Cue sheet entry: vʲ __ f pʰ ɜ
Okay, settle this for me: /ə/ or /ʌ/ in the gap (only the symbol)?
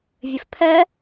ə